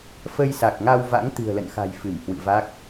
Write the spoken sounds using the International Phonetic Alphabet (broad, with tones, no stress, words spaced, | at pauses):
fə˧jsa˨˩k̚ŋa˧wva̰˧˥ŋ t̪ɨ̤˨˩ə̯lə̰˧˨nxa̤˨˩j fɨ˧˩mhwɨ̰˧˨va˦˥k̚